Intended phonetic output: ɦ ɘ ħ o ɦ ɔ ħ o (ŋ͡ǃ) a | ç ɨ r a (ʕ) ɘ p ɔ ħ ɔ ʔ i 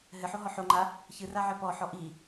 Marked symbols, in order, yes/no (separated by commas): yes, yes